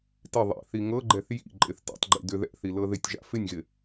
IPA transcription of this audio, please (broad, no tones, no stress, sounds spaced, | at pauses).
t ɪ ðˤ ḭ θ i ŋ ɤ ɡ͡ǃ ɛ θ j ḭ ǃʼ ɪ θ t ḭ tˤ ɡ͡ǃ ḭ d ʏ ð ɛ̰ θ i l ɤ ð ɪ tʲ ʒ a̰ f ɪ nʲ ɣ ɪ